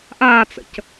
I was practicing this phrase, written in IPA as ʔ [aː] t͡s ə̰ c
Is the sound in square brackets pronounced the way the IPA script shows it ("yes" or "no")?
yes